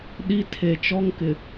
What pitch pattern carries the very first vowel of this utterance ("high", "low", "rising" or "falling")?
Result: high